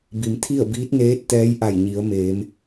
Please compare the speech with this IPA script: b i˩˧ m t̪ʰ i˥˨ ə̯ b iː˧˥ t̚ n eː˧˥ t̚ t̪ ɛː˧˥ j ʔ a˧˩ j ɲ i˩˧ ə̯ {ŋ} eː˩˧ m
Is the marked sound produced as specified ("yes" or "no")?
no